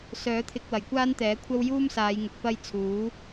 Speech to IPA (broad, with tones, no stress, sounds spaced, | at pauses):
s œː˨˥ t̪ʰ ɪ˧ k̚ w ɐ˨˩ j kʷ aː˥ n t̪ ɛː˨˥ kʷʰ ɐ˥ w j uː˥ m s aː˨˧ j ŋ ʊ˨ k̚ p ɐ˥ j t͡sʰ uː˨˥